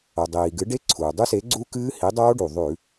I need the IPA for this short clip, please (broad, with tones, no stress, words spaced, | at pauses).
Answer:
o˩dˤiː˩ɡɨ˨˥ ɖe˦˥ǀʰuː˩dˤʉ˦˥se˨˥ ɡ͡ǀu˦˥kɨː˦˥ hi˨˥dˤoː˦˥ɖu˩ ðˤʉ˧˩˧